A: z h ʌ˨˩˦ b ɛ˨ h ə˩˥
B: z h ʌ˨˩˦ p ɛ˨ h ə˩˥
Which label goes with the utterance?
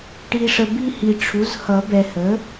A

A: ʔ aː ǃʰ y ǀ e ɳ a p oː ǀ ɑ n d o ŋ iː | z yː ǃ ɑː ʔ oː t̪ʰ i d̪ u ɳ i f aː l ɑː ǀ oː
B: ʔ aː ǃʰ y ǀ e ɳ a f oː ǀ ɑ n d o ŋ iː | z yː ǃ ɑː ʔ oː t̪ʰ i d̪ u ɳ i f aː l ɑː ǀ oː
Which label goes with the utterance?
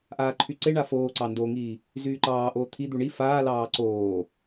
B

